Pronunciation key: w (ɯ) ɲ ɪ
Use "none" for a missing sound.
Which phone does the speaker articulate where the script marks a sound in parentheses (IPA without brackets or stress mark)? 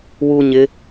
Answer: u